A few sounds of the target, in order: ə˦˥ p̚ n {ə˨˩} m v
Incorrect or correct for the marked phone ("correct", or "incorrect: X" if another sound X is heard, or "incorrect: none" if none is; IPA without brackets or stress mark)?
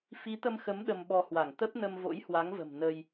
incorrect: ə˧